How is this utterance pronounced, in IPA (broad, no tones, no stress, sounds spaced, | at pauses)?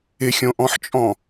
ɪ xʲ õ ʔ ɔ̃ ħ t͡ʃʼ ɔ̃